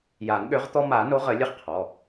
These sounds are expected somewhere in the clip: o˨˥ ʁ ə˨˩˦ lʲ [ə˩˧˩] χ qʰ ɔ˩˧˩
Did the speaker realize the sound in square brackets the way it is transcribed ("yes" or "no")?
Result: no